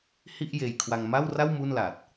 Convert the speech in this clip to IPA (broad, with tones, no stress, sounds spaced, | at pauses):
h i˥˩ ʔ j eː˧ j kʰ w a˧ ŋ m a˥˩ w r a˥˩ w m u˥˩ n l a˨˩ t̚